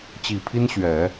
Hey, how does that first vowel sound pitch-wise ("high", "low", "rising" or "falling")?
low